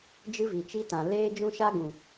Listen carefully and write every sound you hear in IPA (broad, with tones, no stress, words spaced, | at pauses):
d͡ʒɨ˦vi˨t͡ʃi˦tã˨ leː˦ d͡ʒũ˦ʃa˦ɡũ˨